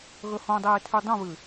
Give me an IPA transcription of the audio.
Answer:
ɣ ɵ h õ dˤ eː tʰ ʉ dˤ ũ β ɨ

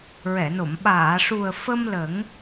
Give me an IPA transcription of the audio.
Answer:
ɹ ɛ˨˩˨ n o˨˩˨ m ɓ aː˨˩˨ ʂ u˨˩ ə̯ f ə˧ m l ə˨˩˦ ŋ

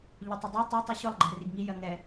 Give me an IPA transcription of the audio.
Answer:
ʎ ʊ tˤ ɛ dˤ ɨ tˤ o tˤ i ɕ ʊ lˠ ɡ͡ǃ ɛ r i ɡ ŋ i j ɜ ŋ ɛ

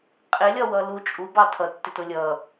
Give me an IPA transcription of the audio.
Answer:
qʼ ɪ lʲ ɒ w ʌ l u t͡ʃʼ u b ɑ tʰ ʌ tː ɪ t ʊ lʲ ʌ

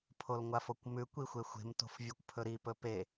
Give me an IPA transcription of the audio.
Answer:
pʰ o l ŋʷ a f o kʷ m ʉ kʷ i xʷ e xʷ e̤ m t o̤ f vʲ ɵ kʷ pʰ ɵ ɾ i p ɵ p e

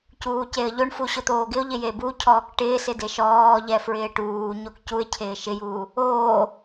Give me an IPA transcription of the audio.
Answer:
c uː c e ə̯ ʎ o ɳ f u ɕ ʊ t̪ oː ɡ ɪ ʊ̯ ʎ ɪ j e b u cʰ ɔː k ʈ ɪː s ɪ d e ʃ ɔː ʎ ɛ f ɹ ɪː ʈ uː ɲ o k c u ɪ̯ cʰ ɪː ʃ ɪ j uː | oː

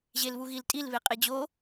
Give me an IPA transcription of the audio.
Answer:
ʑ e l β u ɣ i l tʼ i l β e qʼ e d͡ʑ o

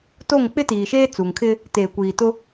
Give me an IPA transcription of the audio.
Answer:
t o˦˨ ŋ k͡p ɪ˦ t iː˨ ʃ eː˦ t͡s u˨ ŋ kʰ ɪ˦ | t eː˨ kʷ iː˨ t ʊ˦

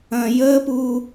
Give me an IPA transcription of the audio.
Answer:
ɐ̃ː j əː p uː

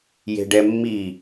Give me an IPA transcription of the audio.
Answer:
j e̤ ɖ ɛ mː i

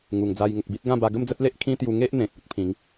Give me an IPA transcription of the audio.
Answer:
ŋ u˨˩ ŋ d͡z a˧ j ŋ ə˨ k̚ b i˦ t̚ ɡ ã˥˧ b a˧ ɡ ə˥˧ m d͡z ə˦ t̚ l e˦ ʔ kʰ ĩ˦ t̪ j u˧ ŋ e˦ ʔ n̪ ẽ˨ k̚ o˦ t̚ pʰ ĩ˨˦ ŋ

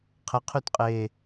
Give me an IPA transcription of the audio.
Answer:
qʰ ə qʰ ʉ t qʼ e

